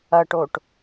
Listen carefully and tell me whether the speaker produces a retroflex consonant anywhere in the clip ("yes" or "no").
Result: yes